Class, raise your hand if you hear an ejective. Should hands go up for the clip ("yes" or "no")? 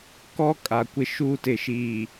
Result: yes